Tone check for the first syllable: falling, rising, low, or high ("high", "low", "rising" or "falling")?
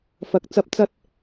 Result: rising